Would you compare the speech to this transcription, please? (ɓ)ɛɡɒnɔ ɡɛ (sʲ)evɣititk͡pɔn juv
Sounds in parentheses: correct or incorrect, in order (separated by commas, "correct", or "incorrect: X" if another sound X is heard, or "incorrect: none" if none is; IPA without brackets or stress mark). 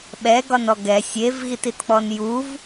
correct, correct